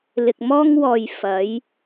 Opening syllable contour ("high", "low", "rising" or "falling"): low